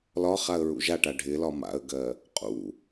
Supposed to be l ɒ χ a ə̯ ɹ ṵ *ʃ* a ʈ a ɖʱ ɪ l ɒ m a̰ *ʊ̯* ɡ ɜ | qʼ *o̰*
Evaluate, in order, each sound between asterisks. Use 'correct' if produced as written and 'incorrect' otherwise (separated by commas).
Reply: incorrect, incorrect, incorrect